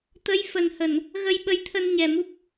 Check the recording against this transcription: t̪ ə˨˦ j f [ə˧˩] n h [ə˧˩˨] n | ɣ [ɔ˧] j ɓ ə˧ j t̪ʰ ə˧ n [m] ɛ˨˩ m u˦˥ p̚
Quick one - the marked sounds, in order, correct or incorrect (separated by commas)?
incorrect, correct, incorrect, incorrect